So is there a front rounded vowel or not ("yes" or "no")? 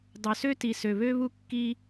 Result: yes